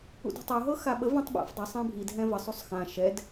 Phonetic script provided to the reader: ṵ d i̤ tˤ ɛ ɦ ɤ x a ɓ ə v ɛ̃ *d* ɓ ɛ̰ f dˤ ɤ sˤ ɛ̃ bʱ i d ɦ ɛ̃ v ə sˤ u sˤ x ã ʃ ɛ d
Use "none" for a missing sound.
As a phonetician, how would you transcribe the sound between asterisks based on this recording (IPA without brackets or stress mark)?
tˤ